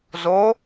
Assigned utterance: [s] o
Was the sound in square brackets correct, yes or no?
no